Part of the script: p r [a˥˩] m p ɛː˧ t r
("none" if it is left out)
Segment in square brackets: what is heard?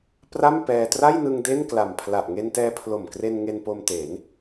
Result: a˥˩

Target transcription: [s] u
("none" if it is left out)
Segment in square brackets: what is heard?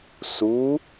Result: s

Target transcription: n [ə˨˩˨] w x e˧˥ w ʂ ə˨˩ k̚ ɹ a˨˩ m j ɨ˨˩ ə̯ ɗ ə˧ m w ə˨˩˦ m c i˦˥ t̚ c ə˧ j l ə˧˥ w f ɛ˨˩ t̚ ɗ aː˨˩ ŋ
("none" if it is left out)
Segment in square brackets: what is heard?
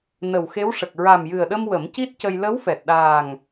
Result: ə˨˩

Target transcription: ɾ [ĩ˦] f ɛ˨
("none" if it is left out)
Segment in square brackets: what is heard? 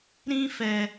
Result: ĩ˦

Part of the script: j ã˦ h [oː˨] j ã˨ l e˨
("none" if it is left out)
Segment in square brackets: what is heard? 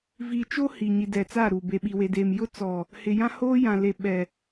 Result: oː˦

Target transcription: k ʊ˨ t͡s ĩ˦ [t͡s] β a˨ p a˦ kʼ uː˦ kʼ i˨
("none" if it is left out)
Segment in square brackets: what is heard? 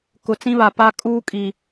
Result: none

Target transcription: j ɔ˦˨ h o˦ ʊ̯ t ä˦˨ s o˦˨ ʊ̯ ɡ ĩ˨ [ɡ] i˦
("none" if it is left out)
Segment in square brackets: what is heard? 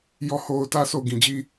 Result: d͡ʑ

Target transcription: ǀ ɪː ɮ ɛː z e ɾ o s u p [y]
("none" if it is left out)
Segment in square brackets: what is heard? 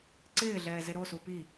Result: i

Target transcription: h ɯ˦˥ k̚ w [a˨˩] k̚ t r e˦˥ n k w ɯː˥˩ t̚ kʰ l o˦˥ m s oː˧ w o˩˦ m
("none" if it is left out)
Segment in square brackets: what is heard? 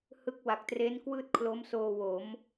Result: a˨˩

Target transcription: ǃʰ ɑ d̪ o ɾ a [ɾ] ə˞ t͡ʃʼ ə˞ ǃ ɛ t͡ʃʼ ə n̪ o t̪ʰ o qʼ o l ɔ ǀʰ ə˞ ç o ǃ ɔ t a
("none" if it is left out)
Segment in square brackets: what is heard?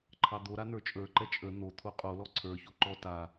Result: n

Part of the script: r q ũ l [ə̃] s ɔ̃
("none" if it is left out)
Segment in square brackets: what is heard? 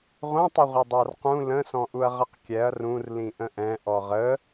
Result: ə̃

